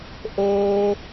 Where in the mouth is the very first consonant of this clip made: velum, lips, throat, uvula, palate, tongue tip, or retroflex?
throat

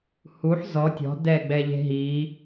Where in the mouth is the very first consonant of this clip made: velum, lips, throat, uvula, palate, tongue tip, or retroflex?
throat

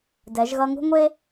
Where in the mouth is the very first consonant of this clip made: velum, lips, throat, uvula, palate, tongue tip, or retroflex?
tongue tip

